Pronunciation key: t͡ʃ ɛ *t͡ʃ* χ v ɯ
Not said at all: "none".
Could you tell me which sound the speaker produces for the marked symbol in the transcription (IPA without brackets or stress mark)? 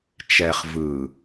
none